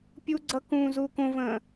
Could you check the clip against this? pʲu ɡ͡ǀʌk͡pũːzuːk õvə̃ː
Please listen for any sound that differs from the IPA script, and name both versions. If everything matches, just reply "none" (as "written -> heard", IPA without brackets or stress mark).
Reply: k͡p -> k